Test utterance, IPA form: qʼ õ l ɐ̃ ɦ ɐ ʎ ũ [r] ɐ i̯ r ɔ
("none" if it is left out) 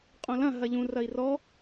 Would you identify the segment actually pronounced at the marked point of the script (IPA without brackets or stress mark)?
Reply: r